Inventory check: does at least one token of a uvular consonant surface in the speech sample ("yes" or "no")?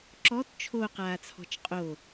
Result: yes